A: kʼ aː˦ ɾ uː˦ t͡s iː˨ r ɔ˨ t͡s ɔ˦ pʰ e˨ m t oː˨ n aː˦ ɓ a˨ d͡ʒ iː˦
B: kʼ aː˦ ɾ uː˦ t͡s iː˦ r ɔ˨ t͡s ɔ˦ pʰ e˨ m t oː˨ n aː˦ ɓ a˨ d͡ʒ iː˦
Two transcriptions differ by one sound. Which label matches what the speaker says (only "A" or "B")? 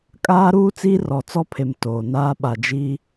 B